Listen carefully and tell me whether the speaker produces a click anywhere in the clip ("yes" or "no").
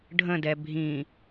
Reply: no